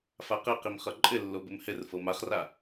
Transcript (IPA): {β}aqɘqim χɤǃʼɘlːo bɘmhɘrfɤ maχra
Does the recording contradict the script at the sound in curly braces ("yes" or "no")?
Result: yes